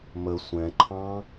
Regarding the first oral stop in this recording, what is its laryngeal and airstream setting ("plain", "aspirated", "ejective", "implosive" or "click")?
click